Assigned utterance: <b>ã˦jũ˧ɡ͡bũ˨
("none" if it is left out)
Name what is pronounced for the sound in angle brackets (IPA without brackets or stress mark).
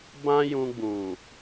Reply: b